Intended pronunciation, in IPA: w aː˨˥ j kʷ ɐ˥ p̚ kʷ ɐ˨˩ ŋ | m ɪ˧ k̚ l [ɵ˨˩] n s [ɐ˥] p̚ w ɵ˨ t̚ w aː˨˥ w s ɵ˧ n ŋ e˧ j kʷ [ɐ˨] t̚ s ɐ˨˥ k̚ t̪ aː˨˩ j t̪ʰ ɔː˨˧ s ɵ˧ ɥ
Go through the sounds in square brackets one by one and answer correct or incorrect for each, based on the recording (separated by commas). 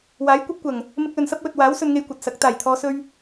incorrect, correct, correct